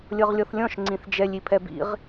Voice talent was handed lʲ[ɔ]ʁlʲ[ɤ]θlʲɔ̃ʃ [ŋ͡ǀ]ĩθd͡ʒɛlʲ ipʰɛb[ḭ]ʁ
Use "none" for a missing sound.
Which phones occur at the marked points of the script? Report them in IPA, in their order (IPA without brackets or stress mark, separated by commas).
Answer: ɤ, ɔ, ŋ͡ǀ, ḭ